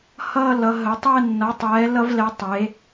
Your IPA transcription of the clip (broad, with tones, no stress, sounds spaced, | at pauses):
h ʌː˥˧ l ʌ˩˧ ɦ ə˩˧ tˤ ɛ˥˧ nː ʌ˩˧ tˤ ɛː˩˧ l ʌ˧ v l ɛ˩˧ tˤ e˩˧